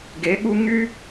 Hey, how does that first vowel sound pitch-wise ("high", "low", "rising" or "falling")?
rising